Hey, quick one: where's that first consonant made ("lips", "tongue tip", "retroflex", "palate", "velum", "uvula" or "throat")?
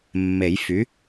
lips